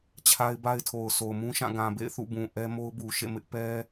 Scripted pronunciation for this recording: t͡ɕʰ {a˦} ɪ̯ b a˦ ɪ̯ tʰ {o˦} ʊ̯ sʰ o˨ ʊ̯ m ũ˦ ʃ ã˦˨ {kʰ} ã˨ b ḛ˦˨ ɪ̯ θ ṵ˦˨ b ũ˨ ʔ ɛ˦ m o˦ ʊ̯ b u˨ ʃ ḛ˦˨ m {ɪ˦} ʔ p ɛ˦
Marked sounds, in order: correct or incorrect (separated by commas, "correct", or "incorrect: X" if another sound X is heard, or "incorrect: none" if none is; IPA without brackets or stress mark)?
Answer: correct, incorrect: o˨, incorrect: ɡ, correct